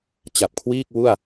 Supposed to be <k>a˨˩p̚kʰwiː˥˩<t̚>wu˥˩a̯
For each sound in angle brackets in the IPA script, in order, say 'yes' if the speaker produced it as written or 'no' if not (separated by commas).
no, no